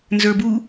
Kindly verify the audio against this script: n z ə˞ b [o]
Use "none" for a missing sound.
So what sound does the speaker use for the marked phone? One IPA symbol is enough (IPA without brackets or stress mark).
u